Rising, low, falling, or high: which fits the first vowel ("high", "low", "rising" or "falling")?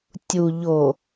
low